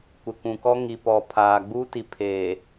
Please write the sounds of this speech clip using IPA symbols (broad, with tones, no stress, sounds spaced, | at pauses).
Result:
kʷ ɪ˨ kʷ ũ˨ k ɔ˦ ŋ i˨ p ɔ˨ pʰ aː˨ ɡ͡b uː˦ t i˨ pʰ eː˨